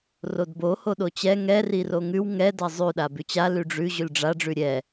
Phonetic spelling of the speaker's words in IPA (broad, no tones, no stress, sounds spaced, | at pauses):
r o d b o h o ɗ o t͡ɕ ɛ ŋ ɛ r i r o ŋ ʉ w ŋ ɛ d a zˤ ʉ ɗ a b ʉ t͡ɕ a l ʉ ɖ͡ʐ ʉ ʑ ʉ l ɖ͡ʐ a ɖ͡ʐ ʉ ɾʲ ɛ